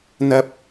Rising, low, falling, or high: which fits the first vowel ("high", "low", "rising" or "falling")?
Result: high